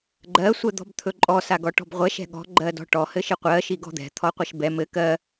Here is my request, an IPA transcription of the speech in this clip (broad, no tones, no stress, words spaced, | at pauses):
ɡ͡ǃɜ sʷɛd̪ɔ̤bt̪ʰɵǃʼɔ saɡɔʈɔ̤bʁʷɛʃ ɛ̤ɠɔ̤ ɡ͡ǃɜdɔ̤ʈɔ hɘʃɪqʷɜ ʃiɡɔ̤d̪ɛ̤ t̪ʰɔqʷɛʃbɛ mɘ kɜ